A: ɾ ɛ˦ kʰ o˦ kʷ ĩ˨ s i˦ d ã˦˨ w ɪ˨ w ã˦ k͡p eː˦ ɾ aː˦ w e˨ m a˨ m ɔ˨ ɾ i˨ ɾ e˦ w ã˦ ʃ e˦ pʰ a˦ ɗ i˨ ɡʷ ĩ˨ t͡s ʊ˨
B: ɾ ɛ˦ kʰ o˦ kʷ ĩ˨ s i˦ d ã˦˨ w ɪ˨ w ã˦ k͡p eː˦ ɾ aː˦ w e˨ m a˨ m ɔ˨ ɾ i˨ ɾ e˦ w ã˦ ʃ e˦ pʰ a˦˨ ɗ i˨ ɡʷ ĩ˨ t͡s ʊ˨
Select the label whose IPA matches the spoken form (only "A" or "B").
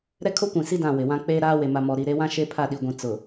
B